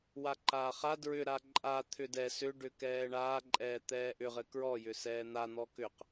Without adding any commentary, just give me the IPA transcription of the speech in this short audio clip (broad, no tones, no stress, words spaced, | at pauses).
waǃaːχa dɹʏɾa ǃʼa t̪ʰʏdɛ sʏɖʏkɛː ɳaː ǃʼɛːt̪ɛːʔʏʁɘ kɹɔjʏ sɛːn̪an̪ɔ kʏq